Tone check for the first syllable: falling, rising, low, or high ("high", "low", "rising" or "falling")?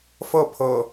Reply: falling